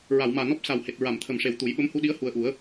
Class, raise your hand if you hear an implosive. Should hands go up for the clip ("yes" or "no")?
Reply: yes